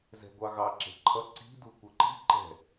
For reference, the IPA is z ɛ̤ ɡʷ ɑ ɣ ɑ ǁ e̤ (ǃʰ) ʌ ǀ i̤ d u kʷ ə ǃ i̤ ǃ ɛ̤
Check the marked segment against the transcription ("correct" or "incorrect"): correct